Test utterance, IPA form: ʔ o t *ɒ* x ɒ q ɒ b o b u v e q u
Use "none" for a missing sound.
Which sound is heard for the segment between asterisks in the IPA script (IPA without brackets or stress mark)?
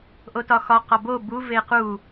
ɒ